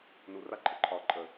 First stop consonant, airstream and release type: click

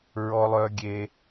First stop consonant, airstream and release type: plain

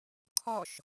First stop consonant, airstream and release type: aspirated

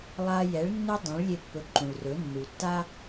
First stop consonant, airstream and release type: plain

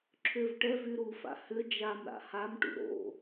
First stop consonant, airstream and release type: click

